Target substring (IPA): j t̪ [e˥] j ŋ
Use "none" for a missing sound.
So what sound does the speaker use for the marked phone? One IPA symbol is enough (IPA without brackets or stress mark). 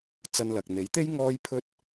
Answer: e˥